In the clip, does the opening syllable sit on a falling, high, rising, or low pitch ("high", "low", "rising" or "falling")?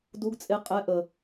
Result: rising